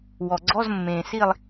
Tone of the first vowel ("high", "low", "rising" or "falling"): low